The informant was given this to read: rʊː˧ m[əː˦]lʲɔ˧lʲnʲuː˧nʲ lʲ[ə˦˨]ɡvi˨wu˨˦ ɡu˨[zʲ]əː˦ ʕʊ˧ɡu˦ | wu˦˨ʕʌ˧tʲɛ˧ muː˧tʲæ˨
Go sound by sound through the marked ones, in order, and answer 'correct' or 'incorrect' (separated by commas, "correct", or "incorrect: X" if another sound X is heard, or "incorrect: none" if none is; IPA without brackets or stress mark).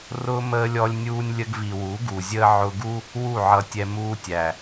incorrect: əː˧, incorrect: ə˧, correct